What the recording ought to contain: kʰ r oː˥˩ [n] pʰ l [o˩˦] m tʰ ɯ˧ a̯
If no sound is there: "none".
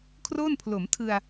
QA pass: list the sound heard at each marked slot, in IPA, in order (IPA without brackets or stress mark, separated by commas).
n, o˩˦